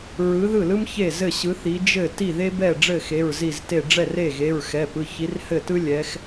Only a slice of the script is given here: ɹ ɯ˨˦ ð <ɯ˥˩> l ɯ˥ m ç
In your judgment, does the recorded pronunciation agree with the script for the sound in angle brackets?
yes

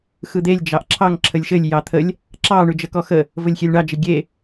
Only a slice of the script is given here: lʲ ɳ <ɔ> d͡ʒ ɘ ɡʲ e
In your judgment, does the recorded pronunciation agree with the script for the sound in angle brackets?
no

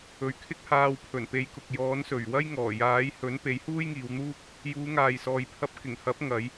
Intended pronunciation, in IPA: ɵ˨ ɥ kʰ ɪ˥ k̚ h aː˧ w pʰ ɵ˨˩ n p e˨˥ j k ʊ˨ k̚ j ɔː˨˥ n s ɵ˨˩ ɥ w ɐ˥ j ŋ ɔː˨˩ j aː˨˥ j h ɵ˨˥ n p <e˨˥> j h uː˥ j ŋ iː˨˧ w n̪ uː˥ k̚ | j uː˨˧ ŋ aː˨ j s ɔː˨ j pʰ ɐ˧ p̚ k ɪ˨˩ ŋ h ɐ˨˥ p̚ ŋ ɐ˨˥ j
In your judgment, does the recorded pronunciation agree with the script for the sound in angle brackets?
yes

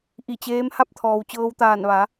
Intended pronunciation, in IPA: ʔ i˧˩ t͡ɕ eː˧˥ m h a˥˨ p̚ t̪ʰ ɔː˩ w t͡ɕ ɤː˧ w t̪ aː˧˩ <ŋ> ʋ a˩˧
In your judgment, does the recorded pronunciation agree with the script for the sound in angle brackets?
no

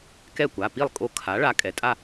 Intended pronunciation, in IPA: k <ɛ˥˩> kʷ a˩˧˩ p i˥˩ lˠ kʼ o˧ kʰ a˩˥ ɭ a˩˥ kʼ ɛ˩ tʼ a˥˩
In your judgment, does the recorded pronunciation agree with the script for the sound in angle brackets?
yes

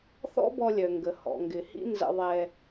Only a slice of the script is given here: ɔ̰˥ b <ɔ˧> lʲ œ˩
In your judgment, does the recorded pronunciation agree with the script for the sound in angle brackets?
yes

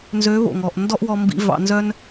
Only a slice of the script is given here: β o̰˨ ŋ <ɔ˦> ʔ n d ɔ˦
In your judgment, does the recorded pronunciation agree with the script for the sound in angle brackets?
no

